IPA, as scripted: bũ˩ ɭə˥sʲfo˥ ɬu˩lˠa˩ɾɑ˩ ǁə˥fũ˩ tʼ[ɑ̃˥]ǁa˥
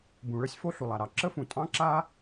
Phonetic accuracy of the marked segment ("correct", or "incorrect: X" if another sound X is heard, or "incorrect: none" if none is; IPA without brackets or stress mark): correct